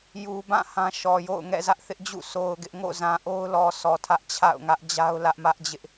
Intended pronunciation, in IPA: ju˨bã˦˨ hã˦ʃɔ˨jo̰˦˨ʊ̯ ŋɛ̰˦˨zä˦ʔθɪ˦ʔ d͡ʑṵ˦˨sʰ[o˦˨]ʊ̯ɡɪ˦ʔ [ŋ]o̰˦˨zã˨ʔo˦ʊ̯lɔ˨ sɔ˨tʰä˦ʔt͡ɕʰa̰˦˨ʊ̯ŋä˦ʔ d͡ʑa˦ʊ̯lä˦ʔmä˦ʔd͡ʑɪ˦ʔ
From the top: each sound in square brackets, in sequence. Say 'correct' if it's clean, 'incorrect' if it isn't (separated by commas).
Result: incorrect, correct